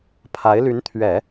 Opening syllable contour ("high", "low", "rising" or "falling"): rising